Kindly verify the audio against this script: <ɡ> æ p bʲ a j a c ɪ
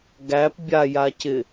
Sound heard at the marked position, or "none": ɡ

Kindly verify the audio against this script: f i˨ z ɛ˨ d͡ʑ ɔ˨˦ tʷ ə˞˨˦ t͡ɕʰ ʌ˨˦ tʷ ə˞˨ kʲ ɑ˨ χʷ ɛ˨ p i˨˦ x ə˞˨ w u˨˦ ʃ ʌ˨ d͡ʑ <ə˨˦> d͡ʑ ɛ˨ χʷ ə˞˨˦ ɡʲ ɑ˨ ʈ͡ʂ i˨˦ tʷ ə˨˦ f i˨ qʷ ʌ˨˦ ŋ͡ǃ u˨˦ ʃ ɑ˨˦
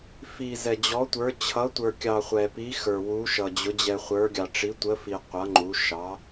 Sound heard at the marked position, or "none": ʊ˨˦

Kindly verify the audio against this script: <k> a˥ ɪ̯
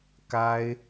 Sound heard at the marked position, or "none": k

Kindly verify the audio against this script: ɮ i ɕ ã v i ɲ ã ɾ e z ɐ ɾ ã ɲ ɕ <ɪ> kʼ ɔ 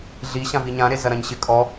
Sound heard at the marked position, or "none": ɪ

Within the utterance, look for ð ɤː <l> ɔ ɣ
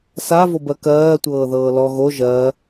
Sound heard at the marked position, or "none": l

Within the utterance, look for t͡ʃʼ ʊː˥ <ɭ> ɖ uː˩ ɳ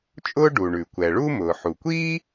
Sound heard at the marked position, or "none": none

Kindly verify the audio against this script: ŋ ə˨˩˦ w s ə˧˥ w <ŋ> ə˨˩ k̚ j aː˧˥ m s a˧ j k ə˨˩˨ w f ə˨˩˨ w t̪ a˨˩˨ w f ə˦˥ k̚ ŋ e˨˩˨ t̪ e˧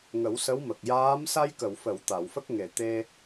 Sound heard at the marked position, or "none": m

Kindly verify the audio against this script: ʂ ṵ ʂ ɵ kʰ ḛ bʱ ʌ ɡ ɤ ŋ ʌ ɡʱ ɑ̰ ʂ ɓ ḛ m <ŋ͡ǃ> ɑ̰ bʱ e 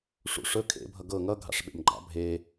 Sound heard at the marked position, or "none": ɡ͡ǃ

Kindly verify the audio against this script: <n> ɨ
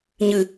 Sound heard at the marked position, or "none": ɲ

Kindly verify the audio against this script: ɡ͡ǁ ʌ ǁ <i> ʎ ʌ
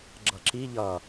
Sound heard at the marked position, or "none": i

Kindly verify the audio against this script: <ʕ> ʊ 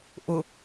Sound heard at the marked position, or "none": ʔ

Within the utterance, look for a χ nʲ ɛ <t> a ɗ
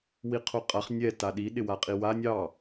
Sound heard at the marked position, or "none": t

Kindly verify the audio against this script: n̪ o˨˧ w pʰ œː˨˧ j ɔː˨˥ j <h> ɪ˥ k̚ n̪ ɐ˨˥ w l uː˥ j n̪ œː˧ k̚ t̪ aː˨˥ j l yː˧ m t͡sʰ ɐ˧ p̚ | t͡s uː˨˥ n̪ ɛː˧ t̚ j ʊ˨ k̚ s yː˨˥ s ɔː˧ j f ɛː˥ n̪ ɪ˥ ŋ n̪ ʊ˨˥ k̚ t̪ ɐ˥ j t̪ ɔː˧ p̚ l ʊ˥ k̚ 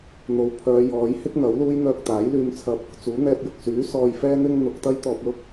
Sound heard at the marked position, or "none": h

